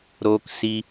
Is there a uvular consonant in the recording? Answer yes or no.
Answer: no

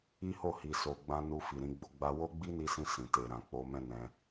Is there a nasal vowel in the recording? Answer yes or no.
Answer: yes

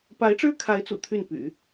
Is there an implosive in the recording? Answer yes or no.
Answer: no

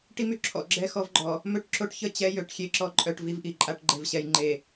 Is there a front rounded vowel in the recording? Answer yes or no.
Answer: yes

